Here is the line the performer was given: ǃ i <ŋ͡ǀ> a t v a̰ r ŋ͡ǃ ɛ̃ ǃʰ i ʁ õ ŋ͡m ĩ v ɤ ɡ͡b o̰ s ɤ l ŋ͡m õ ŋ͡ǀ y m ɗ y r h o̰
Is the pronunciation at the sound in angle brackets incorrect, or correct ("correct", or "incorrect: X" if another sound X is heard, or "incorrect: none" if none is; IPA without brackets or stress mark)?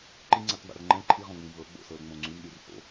correct